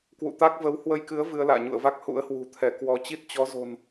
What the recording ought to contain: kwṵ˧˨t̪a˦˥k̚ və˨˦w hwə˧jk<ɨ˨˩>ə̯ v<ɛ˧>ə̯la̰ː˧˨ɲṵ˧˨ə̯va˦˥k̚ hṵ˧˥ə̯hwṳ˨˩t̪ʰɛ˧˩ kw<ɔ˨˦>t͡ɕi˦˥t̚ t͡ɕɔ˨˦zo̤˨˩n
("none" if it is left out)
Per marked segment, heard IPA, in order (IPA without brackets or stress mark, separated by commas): ɨ˨˦, ɨ˧, ɔ˨˦